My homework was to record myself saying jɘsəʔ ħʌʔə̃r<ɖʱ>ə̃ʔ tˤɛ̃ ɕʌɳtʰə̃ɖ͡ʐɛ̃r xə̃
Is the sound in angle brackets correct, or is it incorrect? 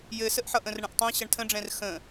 incorrect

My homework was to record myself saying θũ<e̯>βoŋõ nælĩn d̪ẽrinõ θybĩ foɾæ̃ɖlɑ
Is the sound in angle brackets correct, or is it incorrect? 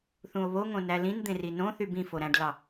incorrect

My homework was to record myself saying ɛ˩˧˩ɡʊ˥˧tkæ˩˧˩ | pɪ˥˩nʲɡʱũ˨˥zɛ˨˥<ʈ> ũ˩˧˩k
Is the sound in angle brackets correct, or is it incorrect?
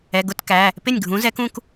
incorrect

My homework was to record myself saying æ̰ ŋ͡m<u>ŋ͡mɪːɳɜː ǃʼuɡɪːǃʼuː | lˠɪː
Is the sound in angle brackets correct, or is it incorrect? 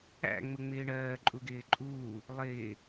incorrect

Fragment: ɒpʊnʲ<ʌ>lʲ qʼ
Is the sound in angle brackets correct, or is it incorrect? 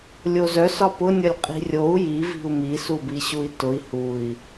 correct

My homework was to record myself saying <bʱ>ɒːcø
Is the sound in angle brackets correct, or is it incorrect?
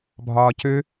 correct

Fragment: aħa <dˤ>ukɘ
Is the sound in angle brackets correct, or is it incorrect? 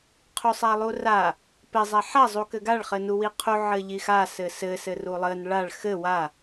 incorrect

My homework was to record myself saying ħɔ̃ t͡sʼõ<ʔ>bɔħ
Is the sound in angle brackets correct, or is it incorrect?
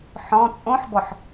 incorrect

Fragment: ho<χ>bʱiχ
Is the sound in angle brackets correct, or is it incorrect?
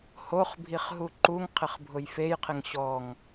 correct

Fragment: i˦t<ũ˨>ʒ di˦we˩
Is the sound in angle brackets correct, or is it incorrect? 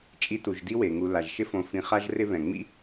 incorrect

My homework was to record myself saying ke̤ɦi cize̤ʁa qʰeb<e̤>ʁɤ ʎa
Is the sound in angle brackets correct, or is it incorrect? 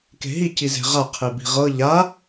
incorrect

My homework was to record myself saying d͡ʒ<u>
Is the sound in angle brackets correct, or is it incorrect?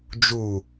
correct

